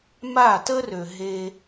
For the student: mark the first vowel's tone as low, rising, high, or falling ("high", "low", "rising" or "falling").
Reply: falling